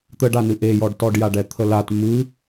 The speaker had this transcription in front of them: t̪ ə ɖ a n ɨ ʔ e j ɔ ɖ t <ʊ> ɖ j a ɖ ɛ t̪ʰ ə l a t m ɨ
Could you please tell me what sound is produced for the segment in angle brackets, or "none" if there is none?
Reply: ɔ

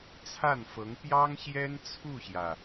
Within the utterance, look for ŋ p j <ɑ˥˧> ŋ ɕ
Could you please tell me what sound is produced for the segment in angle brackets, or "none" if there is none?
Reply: ɑ˥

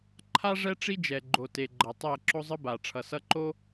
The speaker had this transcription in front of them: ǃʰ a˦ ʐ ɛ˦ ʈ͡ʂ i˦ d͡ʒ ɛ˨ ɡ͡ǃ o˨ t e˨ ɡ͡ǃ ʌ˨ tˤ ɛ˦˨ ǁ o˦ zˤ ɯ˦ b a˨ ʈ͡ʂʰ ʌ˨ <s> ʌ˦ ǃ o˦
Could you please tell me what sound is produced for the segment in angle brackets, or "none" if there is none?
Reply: s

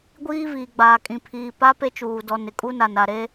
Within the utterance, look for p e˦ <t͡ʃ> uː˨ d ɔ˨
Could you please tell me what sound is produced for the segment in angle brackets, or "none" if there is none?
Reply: t͡ʃ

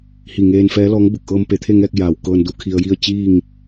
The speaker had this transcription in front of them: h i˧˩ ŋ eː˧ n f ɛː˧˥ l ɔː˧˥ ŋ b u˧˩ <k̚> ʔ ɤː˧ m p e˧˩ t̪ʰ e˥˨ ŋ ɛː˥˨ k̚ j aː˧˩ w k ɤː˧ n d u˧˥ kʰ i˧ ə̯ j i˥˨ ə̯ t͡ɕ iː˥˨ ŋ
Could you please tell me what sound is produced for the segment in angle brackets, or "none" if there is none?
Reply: k̚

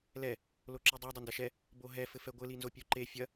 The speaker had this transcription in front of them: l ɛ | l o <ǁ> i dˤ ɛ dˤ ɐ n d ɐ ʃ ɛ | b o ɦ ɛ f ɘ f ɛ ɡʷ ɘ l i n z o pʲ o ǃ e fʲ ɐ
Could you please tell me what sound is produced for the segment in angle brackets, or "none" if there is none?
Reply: ǁ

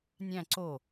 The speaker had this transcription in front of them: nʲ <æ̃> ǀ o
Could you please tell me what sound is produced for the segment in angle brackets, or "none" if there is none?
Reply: æ̃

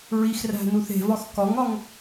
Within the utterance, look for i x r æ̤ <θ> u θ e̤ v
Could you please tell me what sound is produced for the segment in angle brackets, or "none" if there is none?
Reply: n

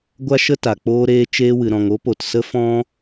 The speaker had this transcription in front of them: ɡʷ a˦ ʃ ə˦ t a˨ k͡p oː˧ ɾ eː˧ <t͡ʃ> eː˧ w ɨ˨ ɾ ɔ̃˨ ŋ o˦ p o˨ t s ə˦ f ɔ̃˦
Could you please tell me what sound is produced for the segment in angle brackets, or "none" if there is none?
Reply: t͡ʃ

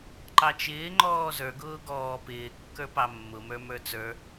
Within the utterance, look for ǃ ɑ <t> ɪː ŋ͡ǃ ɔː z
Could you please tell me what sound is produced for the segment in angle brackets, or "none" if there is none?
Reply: t͡ʃ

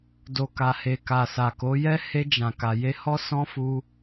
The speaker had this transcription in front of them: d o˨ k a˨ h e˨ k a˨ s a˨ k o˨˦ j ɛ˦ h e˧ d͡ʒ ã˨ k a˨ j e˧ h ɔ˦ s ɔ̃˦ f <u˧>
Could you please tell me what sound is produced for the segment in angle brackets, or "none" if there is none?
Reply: u˦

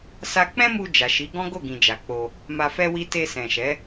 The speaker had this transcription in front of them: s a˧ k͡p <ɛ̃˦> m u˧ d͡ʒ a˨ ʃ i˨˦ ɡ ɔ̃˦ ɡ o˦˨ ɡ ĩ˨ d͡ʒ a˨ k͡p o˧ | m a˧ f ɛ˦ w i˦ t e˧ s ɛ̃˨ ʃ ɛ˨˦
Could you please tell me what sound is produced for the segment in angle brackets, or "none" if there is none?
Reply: ɛ̃˦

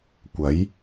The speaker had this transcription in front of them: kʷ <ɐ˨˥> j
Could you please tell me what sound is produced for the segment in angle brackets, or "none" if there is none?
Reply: ɐ˨˥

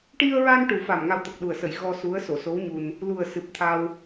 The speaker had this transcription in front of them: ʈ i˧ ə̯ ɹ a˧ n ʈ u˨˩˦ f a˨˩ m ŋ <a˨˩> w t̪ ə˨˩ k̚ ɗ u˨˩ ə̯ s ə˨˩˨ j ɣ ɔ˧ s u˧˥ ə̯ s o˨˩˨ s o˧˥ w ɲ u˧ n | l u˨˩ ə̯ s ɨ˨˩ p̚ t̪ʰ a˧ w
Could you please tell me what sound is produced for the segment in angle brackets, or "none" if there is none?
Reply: a˧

